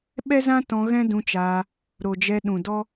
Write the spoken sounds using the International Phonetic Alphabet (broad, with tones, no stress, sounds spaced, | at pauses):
ɓ ɛ˦ z ã˦ t ɔ̃˧ ɣ ɛ̃˦ d ũ˧ t͡ʃ aː˧ | ɾ o˨ d͡ʒ ɛ˧ ɗ ũ˨ d ɔ˦